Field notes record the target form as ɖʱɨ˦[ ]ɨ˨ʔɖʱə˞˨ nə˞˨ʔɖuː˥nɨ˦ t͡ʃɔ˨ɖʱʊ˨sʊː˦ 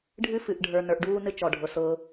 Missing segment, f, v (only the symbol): f